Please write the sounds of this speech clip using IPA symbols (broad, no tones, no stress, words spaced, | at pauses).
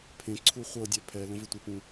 pʰẽ ǀʰuχʷɤdʲɛ pʰɛ lə̃vɪtʷɪpũ